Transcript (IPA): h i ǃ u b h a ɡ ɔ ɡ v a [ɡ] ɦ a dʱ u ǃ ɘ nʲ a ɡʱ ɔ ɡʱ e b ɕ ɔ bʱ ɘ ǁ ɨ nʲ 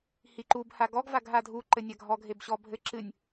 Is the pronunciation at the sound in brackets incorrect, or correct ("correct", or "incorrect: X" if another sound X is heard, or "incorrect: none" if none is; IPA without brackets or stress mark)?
correct